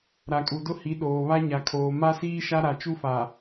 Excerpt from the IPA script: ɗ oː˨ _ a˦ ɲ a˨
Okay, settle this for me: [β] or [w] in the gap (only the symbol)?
β